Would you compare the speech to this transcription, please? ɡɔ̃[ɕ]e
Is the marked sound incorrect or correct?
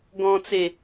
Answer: incorrect